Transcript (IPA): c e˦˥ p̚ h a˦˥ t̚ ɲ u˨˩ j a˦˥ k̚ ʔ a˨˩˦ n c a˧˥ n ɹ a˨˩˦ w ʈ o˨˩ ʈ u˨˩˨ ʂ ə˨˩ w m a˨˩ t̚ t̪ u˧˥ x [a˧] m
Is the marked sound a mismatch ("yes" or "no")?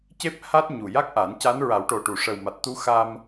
no